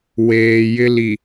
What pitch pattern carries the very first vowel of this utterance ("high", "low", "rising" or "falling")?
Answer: low